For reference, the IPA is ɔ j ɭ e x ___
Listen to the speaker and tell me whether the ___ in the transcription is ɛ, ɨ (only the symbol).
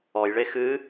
ɨ